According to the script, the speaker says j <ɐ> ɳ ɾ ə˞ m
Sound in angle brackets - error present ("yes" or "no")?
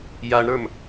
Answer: yes